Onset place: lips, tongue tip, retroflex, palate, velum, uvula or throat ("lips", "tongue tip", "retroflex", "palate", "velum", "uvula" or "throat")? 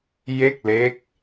palate